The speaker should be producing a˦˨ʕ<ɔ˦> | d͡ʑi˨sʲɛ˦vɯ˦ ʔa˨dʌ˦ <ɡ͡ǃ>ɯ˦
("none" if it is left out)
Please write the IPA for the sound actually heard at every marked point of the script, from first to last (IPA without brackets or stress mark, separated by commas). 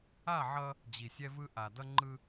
ʌ˦, ŋ͡ǃ